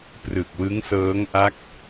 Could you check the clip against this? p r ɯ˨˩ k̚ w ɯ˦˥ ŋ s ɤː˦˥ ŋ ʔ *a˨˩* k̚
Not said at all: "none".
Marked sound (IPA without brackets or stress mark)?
a˦˥